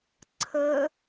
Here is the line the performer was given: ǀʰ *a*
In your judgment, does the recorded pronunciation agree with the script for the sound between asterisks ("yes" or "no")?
no